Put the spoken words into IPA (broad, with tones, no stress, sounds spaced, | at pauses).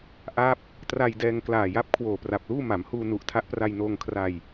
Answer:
ʔ a˦˥ p̚ | t r a˧ j d ɛː˧ ŋ k l aː˨˩ j a˦˥ p̚ kʰ w oː˨˩ p r a˨˩ p̚ l uː˥˩ m a˩˦ m h uː˧ n u˨˩ ʔ tʰ a˦˥ ʔ p r a˧ j n oː˧ ŋ kʰ r a˧ j